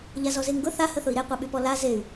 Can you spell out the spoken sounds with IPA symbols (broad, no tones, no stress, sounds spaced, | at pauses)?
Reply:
ʎ a z ɔ z e ŋ ɡ ʊ θ a h ə θ ʊ i̯ ɾ e qʷ æ ɓ y p ɔ l a z e y̯